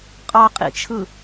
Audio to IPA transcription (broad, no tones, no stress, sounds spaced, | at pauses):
qʼ ɑ qʼ ḭ t͡ʃʰ ɯ